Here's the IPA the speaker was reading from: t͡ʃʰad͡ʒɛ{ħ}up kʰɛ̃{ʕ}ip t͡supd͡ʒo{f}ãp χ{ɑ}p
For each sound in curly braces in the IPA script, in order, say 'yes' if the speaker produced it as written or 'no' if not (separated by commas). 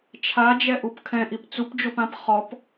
no, no, no, no